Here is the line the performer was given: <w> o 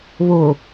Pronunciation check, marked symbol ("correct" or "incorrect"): incorrect